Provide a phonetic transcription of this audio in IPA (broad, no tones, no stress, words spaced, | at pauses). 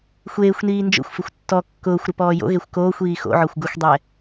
xʷeːxʷniː nd͡ʒo̰xʷfɪxʷ tːɔ kːʊːxʷɾɪ pɔːjo̰ɣexʷ koːxʷiː xo̰ʕɔxʷ ɡʊxʷdˤɛ